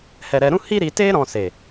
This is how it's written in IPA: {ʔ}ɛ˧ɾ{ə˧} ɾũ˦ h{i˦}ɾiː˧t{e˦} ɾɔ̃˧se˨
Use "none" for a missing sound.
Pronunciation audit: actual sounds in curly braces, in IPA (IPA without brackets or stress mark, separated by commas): h, ɛ˧, i˦, eː˦